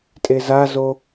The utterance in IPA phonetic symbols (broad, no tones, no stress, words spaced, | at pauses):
tʼezazo